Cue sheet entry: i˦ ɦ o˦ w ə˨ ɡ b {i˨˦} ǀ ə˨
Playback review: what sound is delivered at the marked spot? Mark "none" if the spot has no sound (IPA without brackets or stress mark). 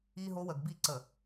i˦